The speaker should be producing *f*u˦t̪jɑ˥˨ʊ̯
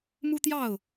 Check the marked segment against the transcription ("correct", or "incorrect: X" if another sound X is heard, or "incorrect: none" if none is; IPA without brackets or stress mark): incorrect: m